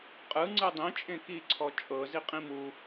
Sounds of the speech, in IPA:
qʼ ɯ ŋ͡ǀ ɯ dˤ ĩ t͡ʃʼ ẽ k i ǀʰ ɔ t͡ʃʼ ɤ z i qʼ ĩ m u

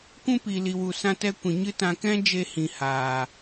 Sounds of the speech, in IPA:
kʷ ũ˦ p i˨ l i˨ w u˨ s ã˦ t ɛ˦ kʷ ĩ˨ ɲ ɨ˦ t ã˧ k ɛ̃˦ d͡ʒ e˧ h ĩ˨ h aː˨

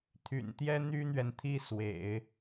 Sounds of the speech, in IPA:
t̪ʰ y̰˨˩ n t̪ j ɛ˥ n̪ y˥ n̪ ɥ ɛ˨ n t̪ʰ i˥˩ s w ḛ˨˩˦ ɪ̯

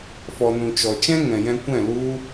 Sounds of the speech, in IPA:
f ɔ˨ n ũ˨ t͡ʃ ɔ˨ t͡ʃ ɛ̃˦ ŋ ɛ̃˨ j ɛ̃˧ kʷ ɛ̃˦˨ l u˧

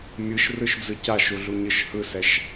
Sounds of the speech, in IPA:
mʲ ɯ ʃ r ɯ ʃ d͡z ɯ c a ʃ u ɮ u ɲ ɯ ʃ h ɯ s ɛ ʃ

